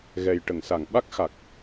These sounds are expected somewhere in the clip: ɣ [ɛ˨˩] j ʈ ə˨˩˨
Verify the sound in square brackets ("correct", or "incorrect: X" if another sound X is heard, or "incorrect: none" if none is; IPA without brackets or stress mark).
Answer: correct